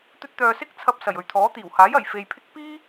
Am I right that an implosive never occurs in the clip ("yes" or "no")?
yes